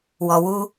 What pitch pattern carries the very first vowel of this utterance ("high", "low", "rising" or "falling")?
low